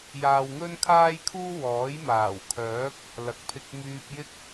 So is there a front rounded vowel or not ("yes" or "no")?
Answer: yes